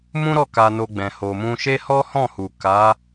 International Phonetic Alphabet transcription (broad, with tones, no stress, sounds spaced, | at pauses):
m ũ˦ ɾ ɔ˦˨ k a˧ n o˧ ɡ͡b ɛ̃˨ h o˨ m ũ˧ ʃ e˦ h ɔ˦ h ɔ̃˦˨ h u˨ k a˨˦